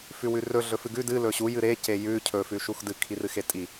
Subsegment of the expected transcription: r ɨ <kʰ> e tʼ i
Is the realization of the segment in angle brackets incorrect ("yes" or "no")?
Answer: yes